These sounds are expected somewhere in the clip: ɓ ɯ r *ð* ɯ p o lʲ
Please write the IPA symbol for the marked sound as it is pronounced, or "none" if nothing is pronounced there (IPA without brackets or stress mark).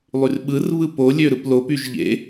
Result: β